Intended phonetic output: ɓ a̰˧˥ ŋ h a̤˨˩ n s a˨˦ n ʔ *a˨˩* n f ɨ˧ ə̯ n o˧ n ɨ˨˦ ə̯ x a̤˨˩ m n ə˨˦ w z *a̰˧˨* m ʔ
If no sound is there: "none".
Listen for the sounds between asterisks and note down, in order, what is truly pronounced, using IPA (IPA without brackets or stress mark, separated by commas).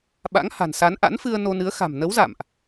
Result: a̰˧˥, a̰˧˨